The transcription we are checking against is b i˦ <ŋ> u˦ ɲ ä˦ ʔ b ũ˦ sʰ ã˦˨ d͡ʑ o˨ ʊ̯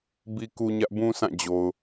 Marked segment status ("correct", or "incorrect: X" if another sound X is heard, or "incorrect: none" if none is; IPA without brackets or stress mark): incorrect: k